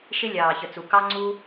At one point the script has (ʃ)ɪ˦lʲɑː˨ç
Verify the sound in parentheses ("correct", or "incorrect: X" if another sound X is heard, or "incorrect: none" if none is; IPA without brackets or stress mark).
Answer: correct